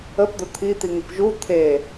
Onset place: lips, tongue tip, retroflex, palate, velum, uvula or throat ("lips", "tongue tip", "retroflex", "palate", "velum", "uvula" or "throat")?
lips